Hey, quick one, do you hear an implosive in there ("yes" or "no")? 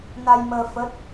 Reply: no